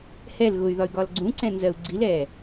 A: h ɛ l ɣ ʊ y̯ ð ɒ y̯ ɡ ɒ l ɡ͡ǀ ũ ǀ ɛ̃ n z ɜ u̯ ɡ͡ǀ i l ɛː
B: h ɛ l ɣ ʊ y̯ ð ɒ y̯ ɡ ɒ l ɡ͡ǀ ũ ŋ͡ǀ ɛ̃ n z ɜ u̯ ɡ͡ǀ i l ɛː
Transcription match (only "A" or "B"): A